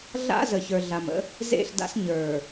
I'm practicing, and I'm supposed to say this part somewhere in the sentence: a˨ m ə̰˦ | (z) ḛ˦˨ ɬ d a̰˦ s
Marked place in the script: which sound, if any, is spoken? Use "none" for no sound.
z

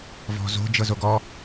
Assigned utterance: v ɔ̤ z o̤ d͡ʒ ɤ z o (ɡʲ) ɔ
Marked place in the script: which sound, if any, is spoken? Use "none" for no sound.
ɡ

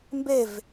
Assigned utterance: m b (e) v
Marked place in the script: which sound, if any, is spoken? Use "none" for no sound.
e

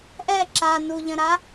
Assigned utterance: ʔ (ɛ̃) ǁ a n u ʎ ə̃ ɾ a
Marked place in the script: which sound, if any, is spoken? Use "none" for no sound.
ɛ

